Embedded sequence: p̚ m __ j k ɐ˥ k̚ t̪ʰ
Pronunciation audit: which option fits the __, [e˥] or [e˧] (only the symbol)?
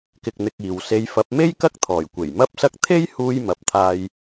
e˥